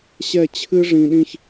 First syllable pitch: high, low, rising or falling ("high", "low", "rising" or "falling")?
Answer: falling